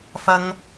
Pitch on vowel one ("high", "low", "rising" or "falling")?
high